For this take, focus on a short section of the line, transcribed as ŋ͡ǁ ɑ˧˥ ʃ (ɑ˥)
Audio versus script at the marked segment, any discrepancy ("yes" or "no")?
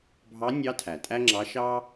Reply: no